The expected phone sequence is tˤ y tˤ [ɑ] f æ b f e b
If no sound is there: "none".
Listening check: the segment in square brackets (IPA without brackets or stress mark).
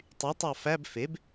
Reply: ɑ